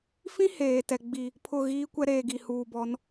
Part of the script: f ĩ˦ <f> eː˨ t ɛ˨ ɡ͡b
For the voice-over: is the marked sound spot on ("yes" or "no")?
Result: no